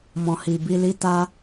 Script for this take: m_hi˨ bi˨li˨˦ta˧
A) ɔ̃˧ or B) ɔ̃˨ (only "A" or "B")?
B